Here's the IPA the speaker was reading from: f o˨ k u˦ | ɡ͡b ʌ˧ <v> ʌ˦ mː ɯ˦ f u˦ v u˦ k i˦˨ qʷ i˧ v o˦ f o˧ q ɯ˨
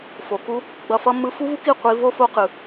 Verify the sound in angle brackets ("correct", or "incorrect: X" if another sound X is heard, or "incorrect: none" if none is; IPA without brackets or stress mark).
incorrect: f